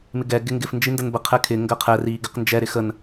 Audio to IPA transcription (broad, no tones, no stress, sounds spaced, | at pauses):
m ɪ ɡ ɛ ɡ ɪ ŋ ɡ ɪ f n d͡ʒ i n d ə n b ə qʰ ɛ kʰ ɪ ŋ ɡ ɜ qʰ ɛ r i ɡ ɪ q n d͡ʒ ɛ ɾ ɪ x ə n